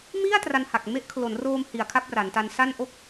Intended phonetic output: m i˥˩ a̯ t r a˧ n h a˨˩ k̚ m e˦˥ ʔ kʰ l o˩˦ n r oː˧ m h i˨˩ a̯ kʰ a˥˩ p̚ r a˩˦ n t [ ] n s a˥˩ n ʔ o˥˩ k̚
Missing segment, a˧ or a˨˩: a˧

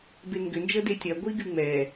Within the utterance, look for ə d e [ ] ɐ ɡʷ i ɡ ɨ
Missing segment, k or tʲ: tʲ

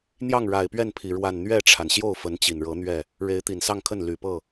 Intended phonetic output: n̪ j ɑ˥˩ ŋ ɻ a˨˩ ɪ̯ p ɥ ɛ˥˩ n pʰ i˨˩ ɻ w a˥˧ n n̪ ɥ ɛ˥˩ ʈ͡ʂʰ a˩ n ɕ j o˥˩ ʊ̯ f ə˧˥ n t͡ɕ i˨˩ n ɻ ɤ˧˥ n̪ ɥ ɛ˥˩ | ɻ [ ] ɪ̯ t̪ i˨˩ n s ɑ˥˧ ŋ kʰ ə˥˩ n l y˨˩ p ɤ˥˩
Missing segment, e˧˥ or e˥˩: e˧˥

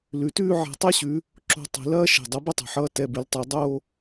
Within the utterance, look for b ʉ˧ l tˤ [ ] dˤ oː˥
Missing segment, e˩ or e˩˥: e˩˥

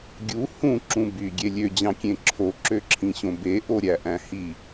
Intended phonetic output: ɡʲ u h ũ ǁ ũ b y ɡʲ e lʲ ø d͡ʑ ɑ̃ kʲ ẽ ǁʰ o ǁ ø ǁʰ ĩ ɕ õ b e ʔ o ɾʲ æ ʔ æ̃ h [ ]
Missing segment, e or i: i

